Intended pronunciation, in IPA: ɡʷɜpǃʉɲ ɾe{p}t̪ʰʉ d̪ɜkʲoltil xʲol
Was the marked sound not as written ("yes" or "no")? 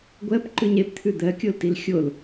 no